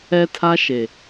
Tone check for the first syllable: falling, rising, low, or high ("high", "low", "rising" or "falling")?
high